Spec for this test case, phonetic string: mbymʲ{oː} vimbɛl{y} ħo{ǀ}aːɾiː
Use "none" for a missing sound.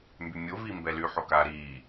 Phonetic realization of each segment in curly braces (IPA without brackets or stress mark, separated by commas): o, y, k